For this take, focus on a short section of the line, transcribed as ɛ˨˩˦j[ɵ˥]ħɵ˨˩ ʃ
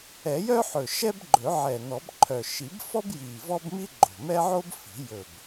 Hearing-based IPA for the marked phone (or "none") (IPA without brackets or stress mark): œ˥